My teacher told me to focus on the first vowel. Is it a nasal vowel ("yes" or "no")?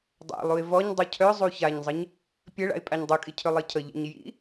no